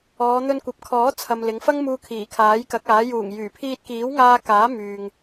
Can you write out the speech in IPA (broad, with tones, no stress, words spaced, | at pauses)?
ɔː˨˧n̪ɵ˧nkʷɐ˨˥p̚ kʰɔː˨˥t͡sʰɐ˨m lɪ˨˧ŋfɐ˥ŋmuː˧ kʰiː˨˩kʰaː˨˥jkɐ˨˥k̚aː˨˥ juː˨˩ŋjyː˨˩ pʰiː˧t̚kiː˨˥wŋaː˧ kaː˨˥myː˨ŋ